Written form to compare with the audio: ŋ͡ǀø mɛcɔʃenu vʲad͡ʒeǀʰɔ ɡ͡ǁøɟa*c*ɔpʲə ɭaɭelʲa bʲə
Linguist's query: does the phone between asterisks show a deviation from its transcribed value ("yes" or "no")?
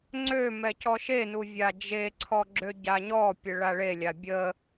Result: yes